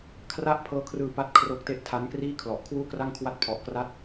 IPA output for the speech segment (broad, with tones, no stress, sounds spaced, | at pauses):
kʰ r a˥˩ ʔ pʰ ɤː˦˥ kʰ r ɯː˧ p a˥˩ t̚ kʰ r o˥˩ k̚ t e˥˩ ʔ tʰ a˦˥ n k r iː˥˩ kʰ l ɔ˨˩ ʔ kʰ w uː˥˩ k r a˥˩ ŋ kʰ w a˦˥ t̚ pʰ ɔ˨˩ ʔ k r a˥˩ t̚